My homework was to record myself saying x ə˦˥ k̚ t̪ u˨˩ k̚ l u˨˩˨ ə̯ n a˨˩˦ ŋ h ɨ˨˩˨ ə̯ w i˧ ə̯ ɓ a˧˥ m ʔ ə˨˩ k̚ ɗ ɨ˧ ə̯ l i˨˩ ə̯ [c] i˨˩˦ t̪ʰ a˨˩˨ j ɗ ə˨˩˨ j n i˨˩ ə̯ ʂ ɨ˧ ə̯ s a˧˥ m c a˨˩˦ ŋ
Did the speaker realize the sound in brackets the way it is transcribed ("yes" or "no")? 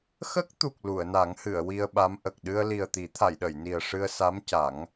no